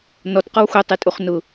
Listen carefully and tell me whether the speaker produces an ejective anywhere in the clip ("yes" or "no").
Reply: yes